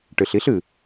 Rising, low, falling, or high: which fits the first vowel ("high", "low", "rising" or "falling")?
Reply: low